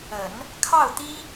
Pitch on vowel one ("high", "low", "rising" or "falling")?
low